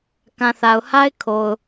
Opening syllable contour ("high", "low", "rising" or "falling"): low